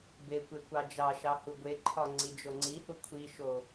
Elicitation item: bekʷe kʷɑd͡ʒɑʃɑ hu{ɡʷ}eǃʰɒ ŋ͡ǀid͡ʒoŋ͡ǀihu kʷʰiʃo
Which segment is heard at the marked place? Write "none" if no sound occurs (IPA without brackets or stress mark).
ɡʷ